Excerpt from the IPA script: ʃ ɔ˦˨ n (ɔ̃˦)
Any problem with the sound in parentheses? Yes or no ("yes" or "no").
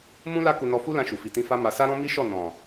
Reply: yes